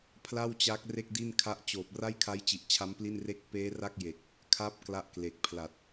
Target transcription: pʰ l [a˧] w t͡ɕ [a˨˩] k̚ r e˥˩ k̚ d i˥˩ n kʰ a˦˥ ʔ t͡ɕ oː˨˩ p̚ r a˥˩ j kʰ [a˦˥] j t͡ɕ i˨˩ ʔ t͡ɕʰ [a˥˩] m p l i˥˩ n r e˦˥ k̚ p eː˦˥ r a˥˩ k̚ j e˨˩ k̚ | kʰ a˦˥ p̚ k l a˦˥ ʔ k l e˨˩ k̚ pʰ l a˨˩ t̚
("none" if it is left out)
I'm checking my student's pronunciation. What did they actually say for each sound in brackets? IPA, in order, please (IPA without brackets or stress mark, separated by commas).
a˥˩, a˦˥, a˦˥, a˦˥